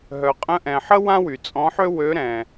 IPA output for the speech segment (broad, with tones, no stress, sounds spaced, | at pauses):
ɦ œ˨ qʼ ə̃˧˥ ʔ ɛ̃˨ ħ ə˥ w ã˥ w y˨ t͡sʼ ɔ̃˧˥ ħ ø˥ w ø˧˥ ɾ ɛ̃˨